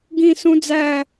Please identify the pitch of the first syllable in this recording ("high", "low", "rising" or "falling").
falling